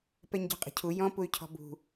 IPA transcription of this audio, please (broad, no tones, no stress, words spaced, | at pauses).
pɛɲɟɔ̤qʼə̤cʰu jɔ̃ puy̯cʰɔ̤bṳ